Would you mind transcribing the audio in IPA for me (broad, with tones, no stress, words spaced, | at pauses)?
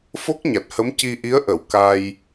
fo˦˥k̚ɲa˨˩t̚hə˧˥m ci˧ʔi˧˥ə̯ ʔə˨˩˨w ka˧j